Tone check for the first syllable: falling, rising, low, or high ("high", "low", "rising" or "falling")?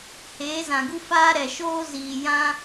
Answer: rising